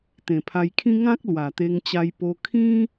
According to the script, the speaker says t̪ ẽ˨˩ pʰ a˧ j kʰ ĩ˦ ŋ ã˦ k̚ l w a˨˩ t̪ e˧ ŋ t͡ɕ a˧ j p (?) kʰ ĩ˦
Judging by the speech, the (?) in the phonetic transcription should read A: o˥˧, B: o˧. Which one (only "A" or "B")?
B